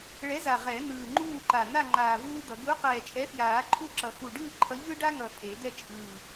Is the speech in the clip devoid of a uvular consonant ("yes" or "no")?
no